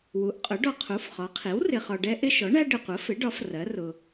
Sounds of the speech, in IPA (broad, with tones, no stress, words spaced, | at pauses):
wu˩˥ʔqʼʊ˩˥ ɖɔ˨qʰu˩˥fχɒ˩˥qʰi˩˥w rɪ˨χɒ˨ɖɛ˦ ʔɪ˦ʃɔ˩˥ɳæ˦ ɖɪ˨qʷə˩˥fɪ˩˥ɖɒ˩˥f rɜ˩˥rʊ˨